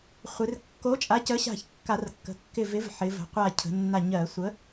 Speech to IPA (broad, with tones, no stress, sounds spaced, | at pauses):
χʷ ɪ˩˧ r kː o˨˥ t͡ʃʼ a˨˥ c ə˨˥ ɕ a̤˧˩ ç kː a˧˩˧ r kː ə̤˩˧ kː ɪ˧˩ v ɪ˨˥ v ħ ɪ˩˧ v ə̤˩˧ qʷ a˧˩ cʰ ə̤˩˧ nː a˧˩ ɲ ɜ˧˩˧ sʷ ə˨˥